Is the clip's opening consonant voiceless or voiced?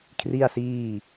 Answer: voiceless